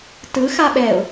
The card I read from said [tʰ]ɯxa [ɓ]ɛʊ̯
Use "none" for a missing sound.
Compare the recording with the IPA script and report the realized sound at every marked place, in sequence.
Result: t, ɓ

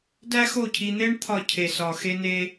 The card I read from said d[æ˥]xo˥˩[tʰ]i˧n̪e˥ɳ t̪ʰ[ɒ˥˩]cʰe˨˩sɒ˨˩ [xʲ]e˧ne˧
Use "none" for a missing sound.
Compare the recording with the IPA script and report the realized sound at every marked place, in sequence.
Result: æ˥, cʰ, ɒ˥˩, x

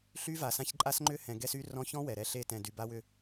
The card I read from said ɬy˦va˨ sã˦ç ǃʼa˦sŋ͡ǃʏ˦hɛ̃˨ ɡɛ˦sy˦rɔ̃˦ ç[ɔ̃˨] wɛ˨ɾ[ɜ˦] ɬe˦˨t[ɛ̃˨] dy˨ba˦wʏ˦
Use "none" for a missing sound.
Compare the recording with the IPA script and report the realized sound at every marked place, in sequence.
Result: ɔ̃˦, ɛ˦, ɛ̃˨

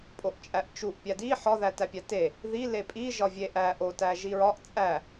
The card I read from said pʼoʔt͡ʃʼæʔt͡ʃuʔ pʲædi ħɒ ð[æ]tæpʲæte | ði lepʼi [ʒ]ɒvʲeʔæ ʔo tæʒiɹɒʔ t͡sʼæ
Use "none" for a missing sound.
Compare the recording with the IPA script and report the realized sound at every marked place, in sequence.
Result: æ, ʒ

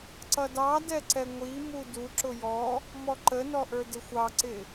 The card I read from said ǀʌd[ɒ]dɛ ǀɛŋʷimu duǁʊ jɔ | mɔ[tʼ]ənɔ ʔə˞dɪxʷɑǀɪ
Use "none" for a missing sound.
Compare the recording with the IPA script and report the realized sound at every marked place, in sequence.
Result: ɑ, ǃ

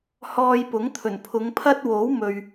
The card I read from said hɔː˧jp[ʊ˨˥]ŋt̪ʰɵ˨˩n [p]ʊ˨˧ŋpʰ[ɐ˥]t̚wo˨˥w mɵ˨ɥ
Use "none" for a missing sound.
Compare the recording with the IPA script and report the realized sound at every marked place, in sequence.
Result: ʊ˨˥, pʰ, ɐ˥

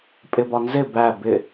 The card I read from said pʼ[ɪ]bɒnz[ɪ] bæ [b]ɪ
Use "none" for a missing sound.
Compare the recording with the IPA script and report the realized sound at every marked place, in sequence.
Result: ɪ, ɪ, b

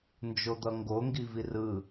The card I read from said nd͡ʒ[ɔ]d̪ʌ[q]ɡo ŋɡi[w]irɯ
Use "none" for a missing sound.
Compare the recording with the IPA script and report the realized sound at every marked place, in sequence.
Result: o, ŋ, v

